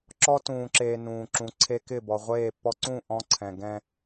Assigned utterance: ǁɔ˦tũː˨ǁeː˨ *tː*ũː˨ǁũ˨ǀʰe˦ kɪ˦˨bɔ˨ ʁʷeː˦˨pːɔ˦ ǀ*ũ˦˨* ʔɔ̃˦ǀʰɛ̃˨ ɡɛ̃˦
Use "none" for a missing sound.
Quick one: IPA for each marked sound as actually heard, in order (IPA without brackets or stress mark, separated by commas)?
n, ũ˦˨